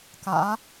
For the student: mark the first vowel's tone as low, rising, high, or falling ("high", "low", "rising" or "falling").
rising